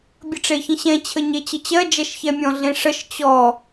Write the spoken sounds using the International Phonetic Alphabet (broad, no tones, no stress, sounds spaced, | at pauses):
bʲ ə ʈ͡ʂ e ç ə̃ ɕ ɛ̃ t͡ɕʰ ə ɲ e t͡ɕ ə t͡ɕ ɜ d͡ʒ ɛ ʃ ç ɛ mʲ ɔ̃ ɮ ẽ ʂ ə ʃ t͡ɕ ɔ